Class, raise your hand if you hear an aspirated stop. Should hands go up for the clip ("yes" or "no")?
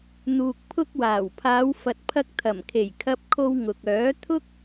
yes